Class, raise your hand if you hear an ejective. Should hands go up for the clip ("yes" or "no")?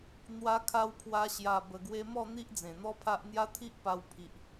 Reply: no